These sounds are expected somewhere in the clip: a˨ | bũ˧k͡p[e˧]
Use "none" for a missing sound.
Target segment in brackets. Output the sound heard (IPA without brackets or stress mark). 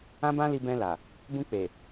e˨